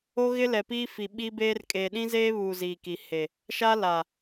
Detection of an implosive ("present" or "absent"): present